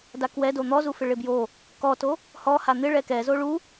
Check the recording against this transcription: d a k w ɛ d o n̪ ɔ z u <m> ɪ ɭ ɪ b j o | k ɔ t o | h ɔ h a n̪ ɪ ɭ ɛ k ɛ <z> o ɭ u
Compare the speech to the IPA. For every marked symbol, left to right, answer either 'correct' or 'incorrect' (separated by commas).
incorrect, correct